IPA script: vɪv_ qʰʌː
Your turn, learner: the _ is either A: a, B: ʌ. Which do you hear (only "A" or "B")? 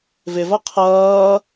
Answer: B